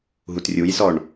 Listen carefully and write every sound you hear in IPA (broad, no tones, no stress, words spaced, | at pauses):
ɦutrʲujsɔɳ